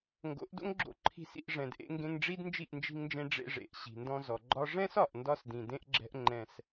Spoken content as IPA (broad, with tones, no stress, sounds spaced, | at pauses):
ŋ ɡ o̰˨˦ ʔ d o̰˦ ŋ ɡ͡ǁ o̰˧ ǃʰ i̤˧ s ḭ˧ ʔ ʐ ɛ̃˨ d ʔ ḛ˧ ŋ ɡ ẽ˧ ŋ ɖ͡ʐ i˦ d n d͡ʒ i˦˨ ʔ n d͡ʒ i̤˧ ŋ n d͡ʒ ẽ˧ ɖ͡ʐ ḛ˧ ʐ ḛ˨ ʔ ɕ i̤˨ n d ɔ̃˧ z ɔ˨ ɡ͡ǃ ɒ˦ ʐ ɛ̃˦ s ɒ˨ ʔ n d ɒ˧ s d ĩ˨ d ẽ˦ ʔ ɡ͡ǁ ɛ̤˦ ʔ ŋ͡ǃ ɛ̃˧ s